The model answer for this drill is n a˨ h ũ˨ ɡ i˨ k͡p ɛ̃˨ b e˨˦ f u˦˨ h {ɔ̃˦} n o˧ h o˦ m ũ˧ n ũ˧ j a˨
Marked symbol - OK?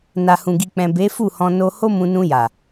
no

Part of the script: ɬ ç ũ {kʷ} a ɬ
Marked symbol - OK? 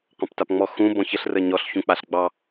no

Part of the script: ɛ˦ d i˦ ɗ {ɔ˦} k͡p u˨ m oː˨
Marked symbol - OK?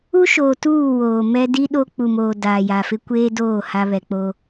no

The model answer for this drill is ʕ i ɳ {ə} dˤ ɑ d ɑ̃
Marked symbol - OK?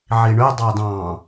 no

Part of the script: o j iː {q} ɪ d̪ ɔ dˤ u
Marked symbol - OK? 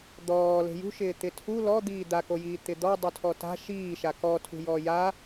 no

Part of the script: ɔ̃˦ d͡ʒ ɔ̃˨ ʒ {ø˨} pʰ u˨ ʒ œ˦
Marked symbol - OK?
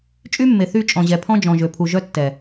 yes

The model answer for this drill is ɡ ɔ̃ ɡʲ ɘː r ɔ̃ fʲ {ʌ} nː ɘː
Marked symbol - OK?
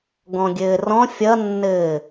yes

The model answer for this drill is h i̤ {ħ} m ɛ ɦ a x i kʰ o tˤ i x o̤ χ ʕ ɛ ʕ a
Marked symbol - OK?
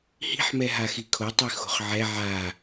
yes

